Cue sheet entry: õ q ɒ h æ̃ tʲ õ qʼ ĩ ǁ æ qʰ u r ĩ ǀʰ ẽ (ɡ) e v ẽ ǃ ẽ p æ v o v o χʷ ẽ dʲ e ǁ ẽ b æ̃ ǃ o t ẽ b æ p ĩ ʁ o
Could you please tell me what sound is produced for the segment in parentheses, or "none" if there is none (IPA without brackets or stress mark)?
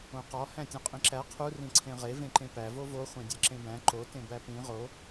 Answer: ʁ